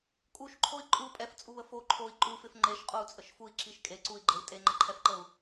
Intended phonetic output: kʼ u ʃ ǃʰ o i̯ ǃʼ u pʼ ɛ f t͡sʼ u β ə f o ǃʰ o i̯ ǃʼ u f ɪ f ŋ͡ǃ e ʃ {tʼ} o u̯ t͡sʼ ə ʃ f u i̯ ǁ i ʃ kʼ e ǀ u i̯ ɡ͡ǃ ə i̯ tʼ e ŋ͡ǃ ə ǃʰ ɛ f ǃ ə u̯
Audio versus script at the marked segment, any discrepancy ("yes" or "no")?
yes